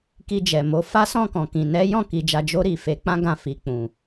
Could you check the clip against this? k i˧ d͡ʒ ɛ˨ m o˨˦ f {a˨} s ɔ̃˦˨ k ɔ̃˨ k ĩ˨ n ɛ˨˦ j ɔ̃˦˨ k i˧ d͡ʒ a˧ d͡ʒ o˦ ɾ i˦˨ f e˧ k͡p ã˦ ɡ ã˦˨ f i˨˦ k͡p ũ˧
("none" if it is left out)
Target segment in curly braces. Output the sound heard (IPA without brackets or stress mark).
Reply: a˦